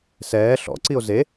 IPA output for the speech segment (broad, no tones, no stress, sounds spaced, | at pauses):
s ɛː ɬ ɔ̰ ǀ i o̯ z e